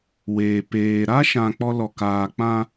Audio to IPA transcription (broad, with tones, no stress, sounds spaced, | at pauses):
w eː˨ p eː˨ ɾ a˦ ʃ ã˨ k͡p ɔ˦ l ɔ˨ k aː˨ k͡p ã˦